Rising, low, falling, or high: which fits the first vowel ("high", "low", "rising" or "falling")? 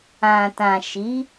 low